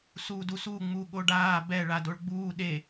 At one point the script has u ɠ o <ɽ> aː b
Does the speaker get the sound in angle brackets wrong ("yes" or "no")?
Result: yes